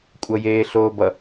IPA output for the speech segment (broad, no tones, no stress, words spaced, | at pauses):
kʷʼʌjeːɬoːbʌ